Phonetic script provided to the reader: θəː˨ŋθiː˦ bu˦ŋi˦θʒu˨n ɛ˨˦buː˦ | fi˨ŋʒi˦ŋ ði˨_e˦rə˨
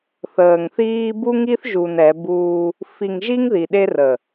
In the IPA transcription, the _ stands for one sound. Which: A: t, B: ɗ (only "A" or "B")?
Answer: B